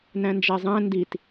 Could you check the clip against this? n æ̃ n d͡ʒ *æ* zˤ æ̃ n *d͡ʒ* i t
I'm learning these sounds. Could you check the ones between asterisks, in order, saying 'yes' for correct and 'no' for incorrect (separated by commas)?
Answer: yes, no